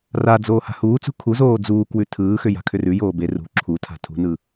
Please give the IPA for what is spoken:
r a d͡z oː h a̤ h uː t͡s ṳ kʰ u z oː d͡z uː k w ʉ tʰ ɯː x ʏ j a̤ kʰ ʏ r ʉ j oː b e r ṳ ǁʰ u tʰ a̤ tʰ ṳ n ɯ

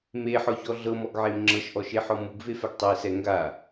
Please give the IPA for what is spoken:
m e ħ ɔ ç ɔ ɮ ɤ m ɔ ɡ ʕ e m ŋ͡ǁ ɤ ʃ ʔ ɔ ʃ e ħ ɔ m u ɡ v e f ɛ ɡ tˤ e s ɛ ŋ ɡ a

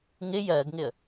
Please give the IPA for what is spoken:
ŋ ɪ j ɜ ɡ ŋ ɪ ə̯

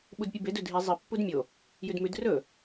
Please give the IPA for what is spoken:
ɓ u d pʲ ɨ b e d ɵ dʱ i zˤ ɨ pː u d mʲ o | j ʉ d m ʉ d r ɵ

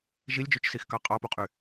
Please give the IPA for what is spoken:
ʒ i lʲ d͡ʒ y t͡ʃ s i x k ɑ qʼ ɑ p o qʼ y

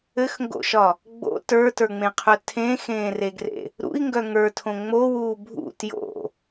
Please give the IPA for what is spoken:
ɘ x ŋ ɡ o̰ ʃ ɒ | ɡ͡b o̰ t ə˞ t ə˞ ŋ͡m ẽ qʰ œ tʰ ẽ x ẽː r e ɡ r ḛ | ɾ ṵ i̯ ŋ ɡ œ ŋ ə˞ tʰ õ ŋ͡m o w uː bʱ ṵ t j o̰

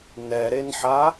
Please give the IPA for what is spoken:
n ɛ ɾ e n ħ a

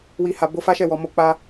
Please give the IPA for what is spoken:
w i˨ h a˨ b o˧ f a˦ ʃ ɛ˦˨ w ɔ˨ m o˧ k͡p a˧

